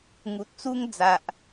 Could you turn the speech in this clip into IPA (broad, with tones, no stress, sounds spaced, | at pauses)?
ŋ u˨ t̚ t͡s u˦ ŋ d͡z a˨ ʔ